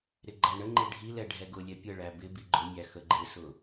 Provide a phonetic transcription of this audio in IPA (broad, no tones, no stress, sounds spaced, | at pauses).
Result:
ɾ ɪ ɡ͡ǃ æ ɳ ə ŋ͡ǃ ɪ ɖʱ i l ɛ ɖʱ ɛ ɡ ʊ lʲ ɛ pʲ ə ɭ æ b ɪ b i ɡ͡ǃ ʊ mʲ æ x ə ɡ͡ǃ ɪ s ʊ